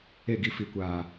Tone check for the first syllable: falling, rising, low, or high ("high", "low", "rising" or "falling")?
falling